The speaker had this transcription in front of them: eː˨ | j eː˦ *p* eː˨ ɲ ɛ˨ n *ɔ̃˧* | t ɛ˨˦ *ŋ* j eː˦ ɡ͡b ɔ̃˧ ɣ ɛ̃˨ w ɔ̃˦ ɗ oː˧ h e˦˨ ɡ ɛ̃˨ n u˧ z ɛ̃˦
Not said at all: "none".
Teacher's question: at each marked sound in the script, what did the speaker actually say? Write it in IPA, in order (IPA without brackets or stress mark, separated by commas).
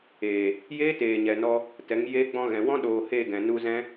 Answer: t, ɔ˧, ŋ